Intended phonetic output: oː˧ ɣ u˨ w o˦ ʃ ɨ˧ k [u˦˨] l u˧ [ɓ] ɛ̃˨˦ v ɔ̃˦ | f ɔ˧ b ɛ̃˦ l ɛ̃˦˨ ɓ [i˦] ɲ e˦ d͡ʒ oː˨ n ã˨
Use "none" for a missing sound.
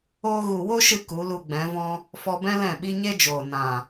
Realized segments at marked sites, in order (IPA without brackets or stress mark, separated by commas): u˨˦, ɡ͡b, i˦